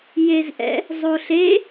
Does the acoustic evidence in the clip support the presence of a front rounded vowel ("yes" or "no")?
no